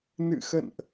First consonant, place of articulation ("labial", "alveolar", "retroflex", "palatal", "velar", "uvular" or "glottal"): alveolar